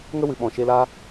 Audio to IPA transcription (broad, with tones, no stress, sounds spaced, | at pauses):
ŋ ə˦ w ɨ˨ ɓ ɔ̃˨ ʃ e˧ l aː˦